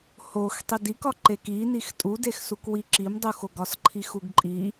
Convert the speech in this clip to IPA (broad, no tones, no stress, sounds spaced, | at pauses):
h o x tˤ i d i k ɒ ǃ e k i n i x tʼ u d e x s u k w i ǁ i m dˤ u x o ɡ ɒ s ǃʰ i x u ɡ ǃʼ i